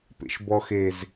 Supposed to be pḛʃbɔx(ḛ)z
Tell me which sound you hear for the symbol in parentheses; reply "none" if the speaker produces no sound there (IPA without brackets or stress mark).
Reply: e